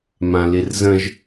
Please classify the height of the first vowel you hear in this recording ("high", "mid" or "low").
low